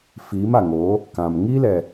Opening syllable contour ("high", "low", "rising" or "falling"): rising